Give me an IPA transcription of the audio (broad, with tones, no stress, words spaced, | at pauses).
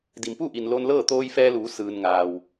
di˩mpuː˥˨ʔi˩n lo˧n lɤː˥˨t̪oː˧jfɛː˧luː˩˧ sɯː˩nŋaː˩w